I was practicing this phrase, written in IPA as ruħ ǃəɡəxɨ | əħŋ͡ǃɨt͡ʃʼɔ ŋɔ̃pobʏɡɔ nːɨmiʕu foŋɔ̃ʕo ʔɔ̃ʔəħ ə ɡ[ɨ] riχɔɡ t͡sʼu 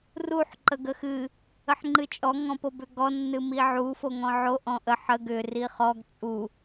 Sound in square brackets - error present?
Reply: yes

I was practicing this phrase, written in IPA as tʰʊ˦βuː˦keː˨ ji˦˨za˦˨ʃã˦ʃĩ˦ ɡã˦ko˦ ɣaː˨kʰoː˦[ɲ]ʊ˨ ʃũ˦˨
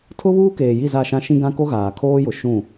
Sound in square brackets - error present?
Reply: yes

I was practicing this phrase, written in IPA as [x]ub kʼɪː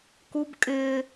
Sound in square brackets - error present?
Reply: yes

